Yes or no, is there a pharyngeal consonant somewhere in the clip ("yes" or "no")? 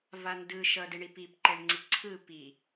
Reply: no